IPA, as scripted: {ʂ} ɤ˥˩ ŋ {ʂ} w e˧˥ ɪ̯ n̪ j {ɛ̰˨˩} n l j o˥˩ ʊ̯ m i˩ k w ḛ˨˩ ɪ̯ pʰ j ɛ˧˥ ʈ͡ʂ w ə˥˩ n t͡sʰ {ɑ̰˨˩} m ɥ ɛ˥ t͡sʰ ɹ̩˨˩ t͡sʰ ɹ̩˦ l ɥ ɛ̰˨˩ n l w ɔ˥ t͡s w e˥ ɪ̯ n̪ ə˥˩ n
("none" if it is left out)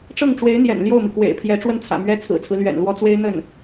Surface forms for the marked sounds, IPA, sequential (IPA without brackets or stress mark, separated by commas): ʈ͡ʂ, ʈ͡ʂ, ɛ̰˨˩, ä̰˨˩